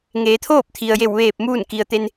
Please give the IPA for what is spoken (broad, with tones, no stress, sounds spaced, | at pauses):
ŋ eː˩˧ t̪ʰ oː˥˨ p̚ t̪ʰ i˩ ə̯ j e˧˩ w ʋ eː˧˩ p̚ m uː˥˨ n k i˩ ə̯ t̪ e˧ n